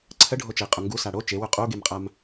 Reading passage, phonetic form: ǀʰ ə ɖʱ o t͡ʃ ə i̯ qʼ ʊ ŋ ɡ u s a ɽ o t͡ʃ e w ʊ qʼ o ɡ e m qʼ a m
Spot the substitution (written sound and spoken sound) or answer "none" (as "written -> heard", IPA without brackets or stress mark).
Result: none